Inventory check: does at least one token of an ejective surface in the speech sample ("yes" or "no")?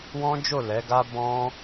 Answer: no